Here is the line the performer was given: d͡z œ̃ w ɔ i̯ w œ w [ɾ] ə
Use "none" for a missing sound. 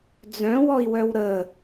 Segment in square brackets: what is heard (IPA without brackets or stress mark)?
ɾ